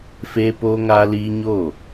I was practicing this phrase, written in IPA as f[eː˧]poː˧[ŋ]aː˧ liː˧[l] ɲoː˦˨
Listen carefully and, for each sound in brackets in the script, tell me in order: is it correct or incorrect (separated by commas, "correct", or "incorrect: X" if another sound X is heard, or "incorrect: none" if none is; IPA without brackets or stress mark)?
correct, correct, incorrect: none